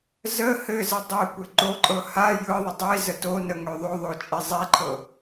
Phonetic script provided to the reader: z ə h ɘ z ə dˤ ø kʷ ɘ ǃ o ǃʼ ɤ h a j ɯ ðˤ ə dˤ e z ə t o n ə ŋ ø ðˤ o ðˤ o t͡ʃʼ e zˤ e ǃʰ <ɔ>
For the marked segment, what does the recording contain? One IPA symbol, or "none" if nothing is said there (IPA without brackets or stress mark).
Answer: ɤ